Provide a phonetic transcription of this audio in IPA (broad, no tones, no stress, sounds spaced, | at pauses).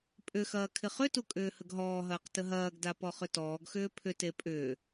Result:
pʼ ʏ x ɐː kʰ ɪ χ ʏ t u kʼ ʏː h ə ɡ ɦ ɔː ɦ ɐː q t ə ɦ ɐː ɡ d a p ɔ χ ʏ t ɔː ɡ x ʏː pʰ ʏ t e pʼ ʏː